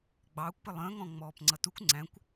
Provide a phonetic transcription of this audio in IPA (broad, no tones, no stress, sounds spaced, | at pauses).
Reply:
ɡ͡b ɑː kʷ p ɪ lˠ ə̃ː ŋ ɔ̃ ŋ͡m ɔː p ŋ͡ǀ ʌ t u kʷ ŋ͡ǀ æ̃ kʷ